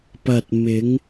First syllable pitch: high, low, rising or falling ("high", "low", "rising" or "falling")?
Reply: low